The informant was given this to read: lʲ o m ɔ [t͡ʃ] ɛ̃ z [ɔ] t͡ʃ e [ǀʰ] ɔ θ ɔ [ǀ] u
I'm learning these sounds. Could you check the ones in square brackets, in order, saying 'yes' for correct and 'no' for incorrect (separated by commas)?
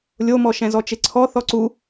no, yes, yes, yes